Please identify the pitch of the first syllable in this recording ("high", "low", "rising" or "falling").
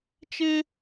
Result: high